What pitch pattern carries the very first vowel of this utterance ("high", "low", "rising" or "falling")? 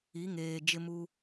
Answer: rising